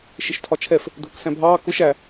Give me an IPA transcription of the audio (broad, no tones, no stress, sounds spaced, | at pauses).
ʃ ɪ ʃ tʰ ɒ t͡ʃʰ ɛ f | dʱ ʊ k s æ̃ bʱ ɑː k ʊ ʃ æ